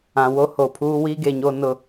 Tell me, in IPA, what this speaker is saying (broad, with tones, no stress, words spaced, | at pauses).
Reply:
ã˨ wo˦ho˨pʰuː˦ wiː˦ɡe˨ɲo˦nʊ˦˨